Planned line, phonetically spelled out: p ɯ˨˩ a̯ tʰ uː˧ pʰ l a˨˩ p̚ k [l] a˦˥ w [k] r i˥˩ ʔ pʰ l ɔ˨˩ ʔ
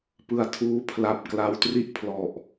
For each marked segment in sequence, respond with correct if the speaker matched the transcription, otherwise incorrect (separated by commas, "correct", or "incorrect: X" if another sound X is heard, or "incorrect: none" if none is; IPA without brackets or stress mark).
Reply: correct, incorrect: t